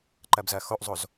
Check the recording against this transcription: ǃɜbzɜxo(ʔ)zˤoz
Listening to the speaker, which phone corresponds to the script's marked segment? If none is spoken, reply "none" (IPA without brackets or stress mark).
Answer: ʔ